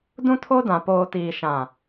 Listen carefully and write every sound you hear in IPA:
dũ˦tʰo˦dã˨ poː˨tiː˨ ʃã˨

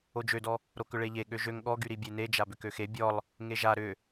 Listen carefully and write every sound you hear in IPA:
od͡ʒødɔ | ɾokʏɭeʎe ɠøʒøŋ ɠɔɡyɾibʲe ned͡ʒa bʏkøxe bʲɔlˠ | ŋeʒa ɾʏ

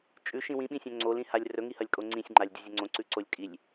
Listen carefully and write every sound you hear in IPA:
t͡ʃʼʉʃĩ wĩɓĩsʲõ ŋ͡ǀolĩhalʲ rɵŋihɐlʲkʼo ŋ͡ǀĩsʲŋ͡ǃalʲdʲuzʲɵ ŋ͡ǀõǀʉǀolʲ kʼilʲ

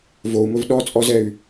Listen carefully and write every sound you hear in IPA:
vou̯mɵv ɗɔt͡sʼɔzɛy̯

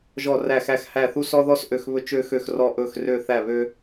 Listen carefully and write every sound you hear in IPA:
ʒɔ˥˧ræ˥˧xæ˥˧x hæ˥˧θu˥ sɔ˥ðɔ˥s ʔø˥˧xβɵ˥ t͡ʃø˥xø˥˧xrɔ˥˧ ʔɵ˥˧x rø˥˧θæ˥˧βø˥

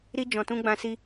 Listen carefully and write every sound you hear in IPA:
ɾi˧ d͡ʒɔ̃˨tũ˧ ɡ͡bã˧ si˧

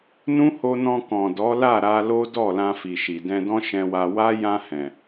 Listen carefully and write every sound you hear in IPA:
nũ˦ho˧nɔ̃˧ kɔ̃˨dɔ˨˦la˦˨ ɾa˧lo˦dɔ˦˨lã˧ fi˨ʃi˨dɛ̃˧dɔ̃˦ ʃɛ̃˧wa˧ wa˦ jã˧ hɛ̃˨

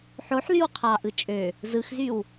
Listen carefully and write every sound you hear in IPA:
ħoħlyw qʰɑʔɯ t͡ʃʼø | zɯxzyw

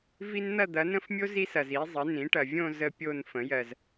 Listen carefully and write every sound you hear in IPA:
vi˥n n̪ɐ˥˧d̪ɐ˩˥nə̃˥˧fmʲo˥ zi˥sɐ˨z i˩˥zˤə˩˥ nĩ˩˥ʈɐ˨vʲõ˥˧ zə˥pʲo˥˧n fə̃˩˥jɜ˨z

